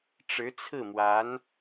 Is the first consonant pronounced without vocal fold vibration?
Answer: yes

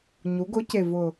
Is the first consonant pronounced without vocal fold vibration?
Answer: no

